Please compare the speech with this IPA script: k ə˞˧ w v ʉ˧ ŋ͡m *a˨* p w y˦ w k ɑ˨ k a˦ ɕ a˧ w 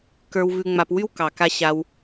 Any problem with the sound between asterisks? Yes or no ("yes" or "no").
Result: yes